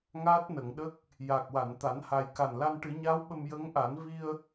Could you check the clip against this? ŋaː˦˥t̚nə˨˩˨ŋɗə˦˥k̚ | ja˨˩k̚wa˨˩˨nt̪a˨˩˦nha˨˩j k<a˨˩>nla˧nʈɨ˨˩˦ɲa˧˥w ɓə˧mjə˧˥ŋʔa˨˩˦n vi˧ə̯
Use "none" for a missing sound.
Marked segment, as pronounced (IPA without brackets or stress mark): a˨˩